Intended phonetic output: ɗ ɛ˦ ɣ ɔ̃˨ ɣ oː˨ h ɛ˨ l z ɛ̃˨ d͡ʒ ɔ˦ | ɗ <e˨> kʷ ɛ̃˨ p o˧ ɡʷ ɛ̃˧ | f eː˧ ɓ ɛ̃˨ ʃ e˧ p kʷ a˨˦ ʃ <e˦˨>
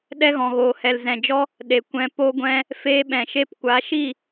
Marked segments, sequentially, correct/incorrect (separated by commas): correct, incorrect